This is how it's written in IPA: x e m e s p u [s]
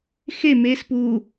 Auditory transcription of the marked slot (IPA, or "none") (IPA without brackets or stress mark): none